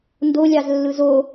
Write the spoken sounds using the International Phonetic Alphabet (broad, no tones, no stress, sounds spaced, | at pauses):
n d o lʲ ɑ z lː ɯ z o